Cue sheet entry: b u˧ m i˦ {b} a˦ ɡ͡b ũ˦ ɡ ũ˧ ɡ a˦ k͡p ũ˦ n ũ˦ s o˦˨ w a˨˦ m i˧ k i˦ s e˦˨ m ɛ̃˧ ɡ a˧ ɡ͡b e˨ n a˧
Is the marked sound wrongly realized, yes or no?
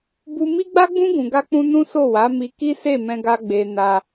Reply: yes